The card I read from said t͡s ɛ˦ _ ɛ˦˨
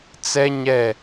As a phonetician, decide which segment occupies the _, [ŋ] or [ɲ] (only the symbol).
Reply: ɲ